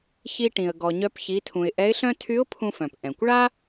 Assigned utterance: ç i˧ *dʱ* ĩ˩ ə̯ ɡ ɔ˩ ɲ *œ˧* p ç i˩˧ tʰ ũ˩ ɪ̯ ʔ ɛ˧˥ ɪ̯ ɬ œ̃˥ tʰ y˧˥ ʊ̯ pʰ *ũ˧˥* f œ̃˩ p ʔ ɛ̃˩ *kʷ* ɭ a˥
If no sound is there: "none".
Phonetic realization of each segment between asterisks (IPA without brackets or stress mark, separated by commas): ʈ, œ˧, ũ˧, kʷ